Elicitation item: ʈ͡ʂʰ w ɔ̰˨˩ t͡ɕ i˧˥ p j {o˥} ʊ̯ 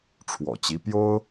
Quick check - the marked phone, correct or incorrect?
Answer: correct